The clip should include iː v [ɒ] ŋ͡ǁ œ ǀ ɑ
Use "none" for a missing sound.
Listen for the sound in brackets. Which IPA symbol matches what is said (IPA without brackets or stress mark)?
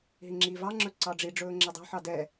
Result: ɑ